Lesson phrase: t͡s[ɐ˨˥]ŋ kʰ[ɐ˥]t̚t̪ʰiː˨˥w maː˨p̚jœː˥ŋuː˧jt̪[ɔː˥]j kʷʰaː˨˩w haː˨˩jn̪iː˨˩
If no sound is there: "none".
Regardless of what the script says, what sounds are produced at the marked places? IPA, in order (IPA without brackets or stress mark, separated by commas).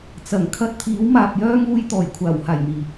ɐ˨˩, ɐ˥, ɔː˨˩